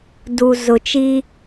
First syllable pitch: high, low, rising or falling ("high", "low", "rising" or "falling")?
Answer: low